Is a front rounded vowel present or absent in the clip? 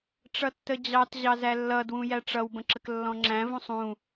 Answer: absent